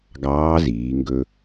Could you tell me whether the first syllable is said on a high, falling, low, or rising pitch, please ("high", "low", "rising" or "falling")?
rising